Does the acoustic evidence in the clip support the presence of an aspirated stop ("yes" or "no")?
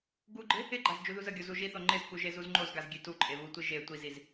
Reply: no